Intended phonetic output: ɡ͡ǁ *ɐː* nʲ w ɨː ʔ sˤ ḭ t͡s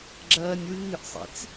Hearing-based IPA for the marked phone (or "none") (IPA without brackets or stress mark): ɐː